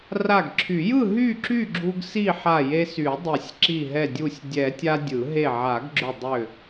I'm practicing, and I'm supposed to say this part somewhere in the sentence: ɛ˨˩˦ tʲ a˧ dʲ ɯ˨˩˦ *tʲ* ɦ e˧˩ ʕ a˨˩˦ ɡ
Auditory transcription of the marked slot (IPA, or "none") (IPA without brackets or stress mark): none